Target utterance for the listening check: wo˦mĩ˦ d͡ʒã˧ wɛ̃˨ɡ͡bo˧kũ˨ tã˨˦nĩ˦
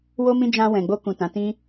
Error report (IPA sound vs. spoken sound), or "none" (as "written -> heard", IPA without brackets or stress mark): n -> t